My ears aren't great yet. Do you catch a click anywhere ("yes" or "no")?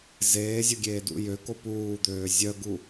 no